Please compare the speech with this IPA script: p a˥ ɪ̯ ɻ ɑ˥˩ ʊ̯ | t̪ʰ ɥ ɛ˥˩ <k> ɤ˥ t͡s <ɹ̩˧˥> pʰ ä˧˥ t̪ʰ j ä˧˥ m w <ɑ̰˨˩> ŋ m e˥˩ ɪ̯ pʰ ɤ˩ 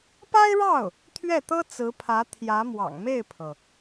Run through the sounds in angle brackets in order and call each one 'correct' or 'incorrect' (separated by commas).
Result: incorrect, correct, correct